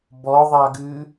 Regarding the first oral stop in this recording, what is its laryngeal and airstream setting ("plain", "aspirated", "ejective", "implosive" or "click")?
plain